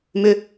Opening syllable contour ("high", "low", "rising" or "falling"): high